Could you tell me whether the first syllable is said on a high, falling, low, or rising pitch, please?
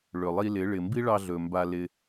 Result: low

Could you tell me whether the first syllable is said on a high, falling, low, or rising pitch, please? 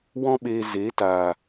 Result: high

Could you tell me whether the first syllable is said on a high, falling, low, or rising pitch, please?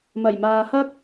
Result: low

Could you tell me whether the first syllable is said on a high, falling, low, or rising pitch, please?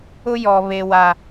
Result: high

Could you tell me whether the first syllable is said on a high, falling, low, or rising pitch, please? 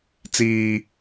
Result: high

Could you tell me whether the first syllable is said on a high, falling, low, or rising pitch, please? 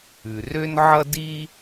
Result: low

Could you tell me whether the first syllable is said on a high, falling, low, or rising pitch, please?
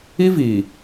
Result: high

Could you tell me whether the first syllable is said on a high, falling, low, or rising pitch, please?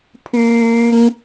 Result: high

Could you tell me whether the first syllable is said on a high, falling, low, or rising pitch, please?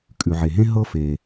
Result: low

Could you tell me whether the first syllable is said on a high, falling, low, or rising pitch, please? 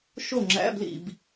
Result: falling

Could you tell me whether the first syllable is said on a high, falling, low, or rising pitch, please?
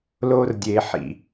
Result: high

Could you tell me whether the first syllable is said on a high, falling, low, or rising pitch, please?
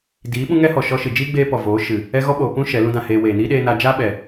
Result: rising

